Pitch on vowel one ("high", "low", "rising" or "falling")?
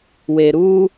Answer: low